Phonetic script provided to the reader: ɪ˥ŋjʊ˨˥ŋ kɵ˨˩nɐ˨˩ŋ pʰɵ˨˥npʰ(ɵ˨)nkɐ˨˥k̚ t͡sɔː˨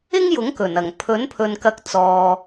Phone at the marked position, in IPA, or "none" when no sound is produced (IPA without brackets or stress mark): ɵ˨